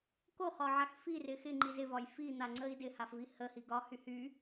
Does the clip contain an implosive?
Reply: no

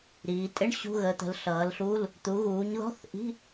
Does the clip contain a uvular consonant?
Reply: no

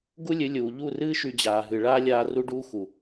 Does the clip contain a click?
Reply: no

